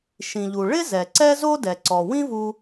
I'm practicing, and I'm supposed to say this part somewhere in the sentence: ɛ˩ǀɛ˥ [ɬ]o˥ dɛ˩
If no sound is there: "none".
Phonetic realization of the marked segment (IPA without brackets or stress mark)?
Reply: z